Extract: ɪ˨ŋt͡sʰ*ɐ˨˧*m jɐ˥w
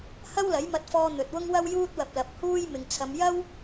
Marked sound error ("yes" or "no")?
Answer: no